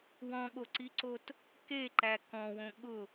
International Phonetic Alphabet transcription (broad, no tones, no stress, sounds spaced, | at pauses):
w ɔ̃ ɠ o ǀ i ǀ o t | k e ǃ æ k ɔ̃ w õ ɠ ʊ